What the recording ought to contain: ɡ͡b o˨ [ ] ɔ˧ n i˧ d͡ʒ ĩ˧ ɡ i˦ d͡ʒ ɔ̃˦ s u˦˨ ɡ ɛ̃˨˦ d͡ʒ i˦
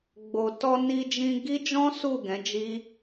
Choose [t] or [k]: t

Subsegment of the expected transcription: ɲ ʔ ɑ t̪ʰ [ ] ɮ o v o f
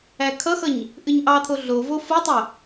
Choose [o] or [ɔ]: o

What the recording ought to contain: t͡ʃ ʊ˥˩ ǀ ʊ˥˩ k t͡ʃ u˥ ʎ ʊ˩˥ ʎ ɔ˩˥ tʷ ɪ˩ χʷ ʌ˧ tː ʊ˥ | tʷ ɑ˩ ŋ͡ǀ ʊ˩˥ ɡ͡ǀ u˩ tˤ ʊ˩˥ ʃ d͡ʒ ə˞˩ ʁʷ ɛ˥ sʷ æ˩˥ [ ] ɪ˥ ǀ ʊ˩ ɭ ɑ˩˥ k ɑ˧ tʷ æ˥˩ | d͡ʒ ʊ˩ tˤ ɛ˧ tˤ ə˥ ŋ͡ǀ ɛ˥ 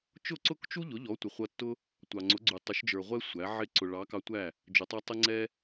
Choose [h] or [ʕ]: ʕ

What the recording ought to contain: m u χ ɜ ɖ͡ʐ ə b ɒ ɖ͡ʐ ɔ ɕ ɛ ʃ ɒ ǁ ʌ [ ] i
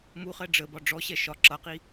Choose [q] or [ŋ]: q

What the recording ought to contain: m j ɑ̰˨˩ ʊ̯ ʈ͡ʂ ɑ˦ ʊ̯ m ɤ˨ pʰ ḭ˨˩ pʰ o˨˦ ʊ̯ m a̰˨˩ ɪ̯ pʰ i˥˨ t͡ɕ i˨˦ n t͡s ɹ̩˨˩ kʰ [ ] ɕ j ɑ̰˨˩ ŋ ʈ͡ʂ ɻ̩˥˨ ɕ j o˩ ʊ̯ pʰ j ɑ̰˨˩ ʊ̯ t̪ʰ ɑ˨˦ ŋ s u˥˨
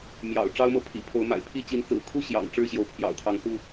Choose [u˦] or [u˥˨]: u˥˨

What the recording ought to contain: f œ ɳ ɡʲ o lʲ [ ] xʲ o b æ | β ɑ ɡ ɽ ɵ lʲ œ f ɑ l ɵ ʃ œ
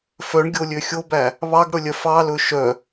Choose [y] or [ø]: ø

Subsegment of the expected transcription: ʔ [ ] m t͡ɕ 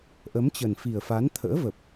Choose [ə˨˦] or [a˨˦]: ə˨˦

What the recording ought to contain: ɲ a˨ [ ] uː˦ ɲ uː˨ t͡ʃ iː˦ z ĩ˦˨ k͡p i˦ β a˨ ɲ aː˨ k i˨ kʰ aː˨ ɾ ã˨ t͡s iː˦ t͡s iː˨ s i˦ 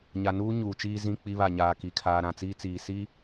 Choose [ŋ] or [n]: n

